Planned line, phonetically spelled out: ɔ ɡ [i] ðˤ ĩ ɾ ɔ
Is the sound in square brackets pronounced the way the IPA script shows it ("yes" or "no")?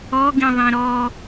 no